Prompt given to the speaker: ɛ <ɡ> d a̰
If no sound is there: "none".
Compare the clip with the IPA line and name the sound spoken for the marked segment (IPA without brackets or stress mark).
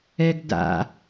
ɡ